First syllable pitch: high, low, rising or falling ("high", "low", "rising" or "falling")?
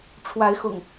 rising